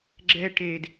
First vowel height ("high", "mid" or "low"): mid